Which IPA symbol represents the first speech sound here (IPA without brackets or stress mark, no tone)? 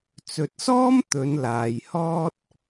t͡s